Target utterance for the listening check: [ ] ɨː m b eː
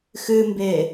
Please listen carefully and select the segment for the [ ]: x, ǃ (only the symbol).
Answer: x